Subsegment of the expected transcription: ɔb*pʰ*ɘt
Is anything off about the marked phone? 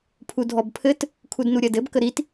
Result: no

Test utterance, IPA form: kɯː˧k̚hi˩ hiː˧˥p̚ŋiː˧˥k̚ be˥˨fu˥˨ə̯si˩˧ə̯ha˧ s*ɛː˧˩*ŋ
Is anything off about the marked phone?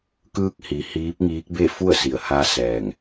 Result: no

